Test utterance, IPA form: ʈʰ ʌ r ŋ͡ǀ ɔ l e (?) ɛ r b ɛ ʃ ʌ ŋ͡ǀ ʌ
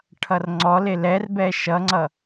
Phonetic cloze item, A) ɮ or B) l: B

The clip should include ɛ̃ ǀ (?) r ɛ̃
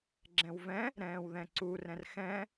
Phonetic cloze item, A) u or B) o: A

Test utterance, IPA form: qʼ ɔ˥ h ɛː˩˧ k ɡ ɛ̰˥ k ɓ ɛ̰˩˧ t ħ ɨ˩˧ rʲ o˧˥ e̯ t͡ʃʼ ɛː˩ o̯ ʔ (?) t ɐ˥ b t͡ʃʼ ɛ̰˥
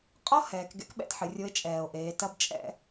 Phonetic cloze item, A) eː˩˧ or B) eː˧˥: A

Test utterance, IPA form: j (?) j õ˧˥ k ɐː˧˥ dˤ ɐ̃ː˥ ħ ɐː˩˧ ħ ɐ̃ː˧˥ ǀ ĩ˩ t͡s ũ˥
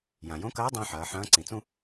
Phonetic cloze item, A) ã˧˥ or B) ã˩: B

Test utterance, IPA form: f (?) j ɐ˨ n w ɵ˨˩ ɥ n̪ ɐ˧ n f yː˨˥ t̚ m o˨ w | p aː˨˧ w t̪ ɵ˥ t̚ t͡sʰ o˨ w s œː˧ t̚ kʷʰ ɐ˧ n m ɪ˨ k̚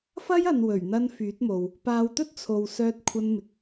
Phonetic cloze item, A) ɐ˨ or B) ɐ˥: B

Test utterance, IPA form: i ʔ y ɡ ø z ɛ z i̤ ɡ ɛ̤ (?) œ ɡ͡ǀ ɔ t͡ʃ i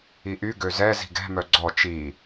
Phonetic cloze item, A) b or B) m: B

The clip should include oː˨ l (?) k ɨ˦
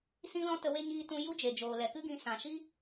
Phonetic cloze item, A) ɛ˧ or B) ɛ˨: B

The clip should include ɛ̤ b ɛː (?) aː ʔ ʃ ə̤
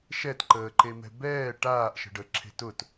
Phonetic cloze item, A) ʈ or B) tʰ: A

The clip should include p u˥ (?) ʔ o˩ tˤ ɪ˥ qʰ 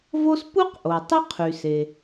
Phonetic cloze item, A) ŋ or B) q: B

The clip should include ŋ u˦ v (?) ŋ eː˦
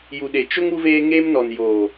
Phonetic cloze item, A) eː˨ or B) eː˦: B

